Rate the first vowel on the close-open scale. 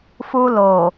close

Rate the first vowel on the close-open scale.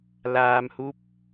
open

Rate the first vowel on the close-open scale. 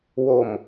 mid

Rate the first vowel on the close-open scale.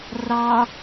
open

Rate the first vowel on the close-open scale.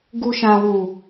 close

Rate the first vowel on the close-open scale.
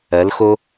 mid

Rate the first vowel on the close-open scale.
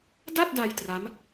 open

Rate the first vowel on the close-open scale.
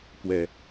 mid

